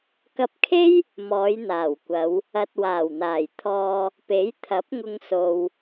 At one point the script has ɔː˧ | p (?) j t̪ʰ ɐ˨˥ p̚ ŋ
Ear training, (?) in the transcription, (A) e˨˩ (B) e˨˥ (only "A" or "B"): B